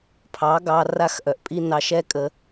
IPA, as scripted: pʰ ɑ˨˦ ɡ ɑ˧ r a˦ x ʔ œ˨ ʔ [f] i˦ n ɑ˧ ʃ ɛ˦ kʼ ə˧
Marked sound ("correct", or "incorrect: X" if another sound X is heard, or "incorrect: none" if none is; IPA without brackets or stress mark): incorrect: pʼ